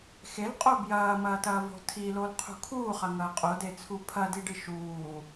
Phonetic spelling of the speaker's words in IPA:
x e l qʼ o b j ɐː m ɐː t ɐː v o̤ tʰ i l o l qʰ ṳ kʰ uː χ ɐ ŋ ɐː qʼ o d e t͡sʰ u pʰ ɐ d i ɖ ɨ ʃ uː

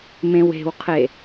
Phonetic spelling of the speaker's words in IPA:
m ẽ w e̤ w qʰ e

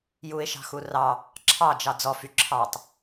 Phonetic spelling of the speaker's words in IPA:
j u ɪ̯ ʃ ɑ̤ x u r ɑ | ǁʰ ɑ d͡ʒ ɑ d͡z ɔ f y ǁʰ ɑ tˤ

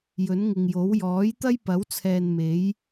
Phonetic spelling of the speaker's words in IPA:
j ɵ˨˥ n ŋ ɪ˨ ŋ j o˨˥ w j ɔː˨˥ j t̪ ɐ˥ j p ɐ˨˥ w t͡sʰ ɛː˨ n m e˨˥ j

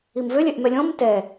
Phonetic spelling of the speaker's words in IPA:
i m v ø lʲ ɛ ʔ m ɛ lʲ ɔ̃ m t ɛ

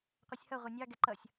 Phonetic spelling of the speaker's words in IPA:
qʷ ɛ sʲ h ʌ ʁʷ ɛ nʲ ɑ ɡ ɛ ǃ ʌ sʲ

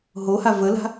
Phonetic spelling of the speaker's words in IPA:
ɦ o h a v ə l a̤

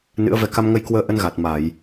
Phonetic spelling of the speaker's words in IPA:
n ɨ̰˧˥ ə̯ v ɛ˧ k a˧ m ŋ ə˧ j k w əː˧ ʔ ə˧ n ɣ a˨˩ t̚ m a˧˩˨ j

